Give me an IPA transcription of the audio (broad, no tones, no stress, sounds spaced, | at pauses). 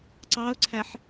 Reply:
ǀ ɑ ʊ̯ ǀʰ æ ħ